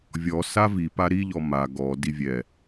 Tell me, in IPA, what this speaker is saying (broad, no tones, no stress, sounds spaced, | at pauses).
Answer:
vʲ ɔ s a v i p a ɾ i ʎ ɔ m a ɡ ɔ d i vʲ ɛ